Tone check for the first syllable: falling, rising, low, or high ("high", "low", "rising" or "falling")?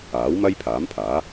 rising